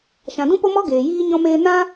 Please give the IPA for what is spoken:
ʃ ã˨ d ũ˦ p o˦ m ɔ˦ ɡ eː˨ j iː˦ ɲ ɔ̃˧ m eː˧ n ã˦

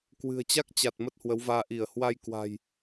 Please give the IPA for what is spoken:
k w ɨ̤˨˩ ə̯ t͡ɕ a˦˥ k̚ t͡ɕ a˨˩ t̚ m ə˦˥ t̚ h w ə˨˦ w v aː˧ ʔ i˧˩ ə̯ h w a˧ j k w a̤˨˩ j

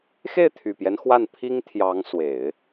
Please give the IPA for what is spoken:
x e˥˩ ɪ̯ t̪ʰ y˨˩ p j ɛ˦ n x w a˥˩ n pʰ i˥ ŋ t̪ʰ j ɑ˧˥ ŋ s w e˨˩˦ ɪ̯

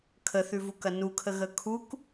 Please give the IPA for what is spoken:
kʰ ə θ ʉ v u k ɐ n u kʰ ə ɣ ə kʰ u k

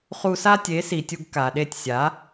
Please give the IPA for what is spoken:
χ u˧ s a˦ tʲ e˨˦ s i˨ tʲ u˧ ɡ k a˨ ɗ e˦˨ tʲ sʲ a˨˦

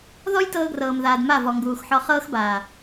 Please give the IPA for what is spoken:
ð ɔ˦ j t ɤː˧ ɡ r ɤː˨ m ð aː˨ d m a˦˨ v ɔ˨ ŋ ɡ uː˨ x ħ ɔ˧ χ ɤː˦ x b aː˨

